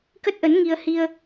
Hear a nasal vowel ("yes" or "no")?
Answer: no